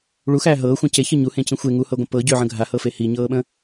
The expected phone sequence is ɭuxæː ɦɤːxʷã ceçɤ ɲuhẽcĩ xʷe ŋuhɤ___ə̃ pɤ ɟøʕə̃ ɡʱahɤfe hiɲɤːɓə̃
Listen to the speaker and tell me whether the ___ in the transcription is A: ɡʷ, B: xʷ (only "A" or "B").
A